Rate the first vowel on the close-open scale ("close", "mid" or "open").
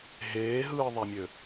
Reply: mid